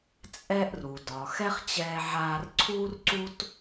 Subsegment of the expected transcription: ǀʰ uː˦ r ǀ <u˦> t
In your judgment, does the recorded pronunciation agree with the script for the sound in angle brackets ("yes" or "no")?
yes